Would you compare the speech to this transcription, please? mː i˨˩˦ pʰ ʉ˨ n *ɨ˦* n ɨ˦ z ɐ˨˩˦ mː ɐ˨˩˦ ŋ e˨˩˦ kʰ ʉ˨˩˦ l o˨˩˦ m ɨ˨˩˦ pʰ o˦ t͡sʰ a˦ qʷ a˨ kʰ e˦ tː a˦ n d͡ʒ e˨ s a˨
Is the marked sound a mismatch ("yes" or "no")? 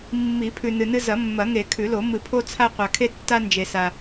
yes